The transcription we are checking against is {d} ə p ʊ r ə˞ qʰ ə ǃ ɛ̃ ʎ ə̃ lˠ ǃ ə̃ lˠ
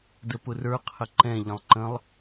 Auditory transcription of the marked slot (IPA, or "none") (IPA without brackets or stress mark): d